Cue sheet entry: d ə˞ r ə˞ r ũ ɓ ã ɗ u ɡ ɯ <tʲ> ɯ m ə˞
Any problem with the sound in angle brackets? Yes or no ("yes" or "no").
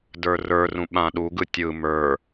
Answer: no